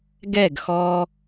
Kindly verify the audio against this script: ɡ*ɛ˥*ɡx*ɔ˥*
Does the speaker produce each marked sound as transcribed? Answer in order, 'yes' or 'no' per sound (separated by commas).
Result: no, no